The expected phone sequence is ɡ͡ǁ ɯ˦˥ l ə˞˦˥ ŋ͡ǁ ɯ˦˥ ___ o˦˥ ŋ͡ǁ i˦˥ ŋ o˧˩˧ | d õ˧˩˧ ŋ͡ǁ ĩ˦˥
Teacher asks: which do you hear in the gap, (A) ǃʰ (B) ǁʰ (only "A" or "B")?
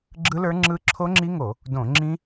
B